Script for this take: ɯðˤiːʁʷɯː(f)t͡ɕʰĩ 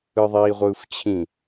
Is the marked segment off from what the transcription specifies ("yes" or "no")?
no